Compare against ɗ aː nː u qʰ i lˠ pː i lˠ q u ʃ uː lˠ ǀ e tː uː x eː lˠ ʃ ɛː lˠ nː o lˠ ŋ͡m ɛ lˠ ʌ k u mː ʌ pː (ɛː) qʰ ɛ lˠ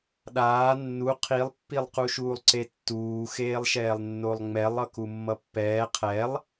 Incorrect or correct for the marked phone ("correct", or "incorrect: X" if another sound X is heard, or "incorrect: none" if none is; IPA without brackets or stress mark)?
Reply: correct